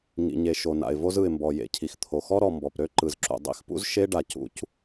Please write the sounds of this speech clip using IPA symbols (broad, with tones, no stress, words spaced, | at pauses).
ŋḭ˩ɲe˩ ʃo˩na̰˩ɪ̯ vo˥zɯ˩ɪ̯mbɔ˩ jḛ˩cʰi˩x t̪ʰo˩xɔ˥ɾɔ˩mbɔ˩p ɾø˥ ǃɯ˩zǁṵ˩ dˤḭ˥xpṵ˥z ʃe˥ ɖa˩ cṵ˥c